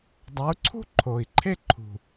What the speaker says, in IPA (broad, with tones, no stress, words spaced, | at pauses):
dˤa˨˥u̯ ǀʰṳ˥ ǃʰo˨˩i̯ǃʰe˥ǃʰṳ˨˩